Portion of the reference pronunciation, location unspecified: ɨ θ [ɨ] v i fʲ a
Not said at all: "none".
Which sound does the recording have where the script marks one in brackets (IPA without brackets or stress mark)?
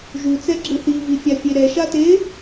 i